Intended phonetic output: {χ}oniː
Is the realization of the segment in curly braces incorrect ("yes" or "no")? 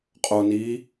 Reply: yes